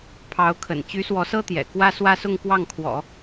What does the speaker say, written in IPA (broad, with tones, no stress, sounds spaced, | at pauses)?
pʰ ɑ˧˥ ʊ̯ kʰ ə̰˨˩ n t͡ɕ y˧˥ s w ɔ˧˥ s ɤ˥ t̪ j ɛ̰˨˩ k w ä˥ s w ä˥ s ʊ˥˧ ŋ k w ɑ˥˩ ŋ kʰ w ɔ̰˨˩˦